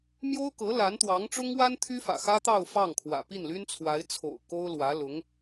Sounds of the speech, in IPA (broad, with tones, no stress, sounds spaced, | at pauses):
m j o˥ ʊ̯ k ɤ˧˥ l a˧˥ n t̪ w ɑ˧˥ ŋ ʈ͡ʂ ʊ˥ ŋ w a˥ n t̪ʰ y˥ f ä̰˨˩ x ä˥ t̪ ɑ˥˧ ʊ̯ f ɑ˥˩ ŋ kʰ w ä̰˨˩ p i˥˩ n l y˥ n t͡sʰ w a˧˥ ɪ̯ t͡sʰ o̰˨˩ ʊ̯ k o˥ ʊ̯ l w ä˧˥ l ʊ˧˥ ŋ